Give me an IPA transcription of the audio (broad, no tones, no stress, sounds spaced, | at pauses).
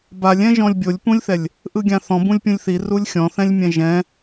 b a lʲ ɛ̃ ʒ ɔ̃ lʲ bʲ o lʲ p ũ lʲ θ ɛ lʲ | ʔ ɯ ɡʲ ã θ ɔ̃ b ũ lʲ pʲ ũ lʲ θ i r u lʲ xʲ ɔ̃ θ ɛ̃ lʲ mʲ ɛ̃ ʒ ɛ̃